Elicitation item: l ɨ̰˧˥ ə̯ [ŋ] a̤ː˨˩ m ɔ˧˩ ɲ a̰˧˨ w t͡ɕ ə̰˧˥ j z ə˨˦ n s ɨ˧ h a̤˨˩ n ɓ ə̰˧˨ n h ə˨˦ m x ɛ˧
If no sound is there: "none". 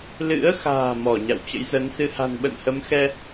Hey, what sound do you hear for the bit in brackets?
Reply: x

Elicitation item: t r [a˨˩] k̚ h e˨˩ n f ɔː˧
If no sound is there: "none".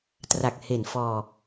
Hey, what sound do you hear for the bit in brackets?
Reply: a˨˩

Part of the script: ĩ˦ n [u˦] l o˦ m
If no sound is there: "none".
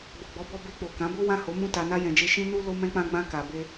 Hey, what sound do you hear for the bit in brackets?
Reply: u˦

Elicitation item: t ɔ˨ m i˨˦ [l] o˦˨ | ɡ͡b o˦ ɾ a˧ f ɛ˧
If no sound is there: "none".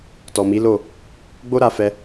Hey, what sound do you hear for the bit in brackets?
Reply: l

